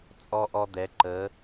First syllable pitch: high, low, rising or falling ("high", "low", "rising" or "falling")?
high